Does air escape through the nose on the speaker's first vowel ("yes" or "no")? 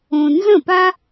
yes